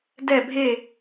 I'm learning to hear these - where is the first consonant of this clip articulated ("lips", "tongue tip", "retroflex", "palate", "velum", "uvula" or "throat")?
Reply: tongue tip